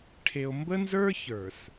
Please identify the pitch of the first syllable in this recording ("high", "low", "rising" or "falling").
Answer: low